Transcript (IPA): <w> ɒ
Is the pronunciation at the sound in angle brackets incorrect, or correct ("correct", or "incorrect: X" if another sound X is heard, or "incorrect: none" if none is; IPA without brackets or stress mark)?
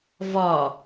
incorrect: v